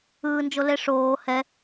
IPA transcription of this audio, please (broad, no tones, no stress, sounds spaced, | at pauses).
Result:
ɯː n d͡ʒ o l e ʂ oː h ɛ